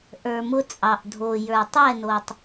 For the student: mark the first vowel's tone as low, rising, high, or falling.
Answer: low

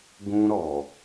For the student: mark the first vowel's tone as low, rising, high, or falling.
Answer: high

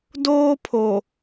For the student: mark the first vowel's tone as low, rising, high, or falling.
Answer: high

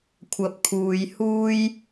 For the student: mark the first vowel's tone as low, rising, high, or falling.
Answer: rising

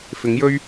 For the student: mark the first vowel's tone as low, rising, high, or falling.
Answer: rising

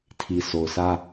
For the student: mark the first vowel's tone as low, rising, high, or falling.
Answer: low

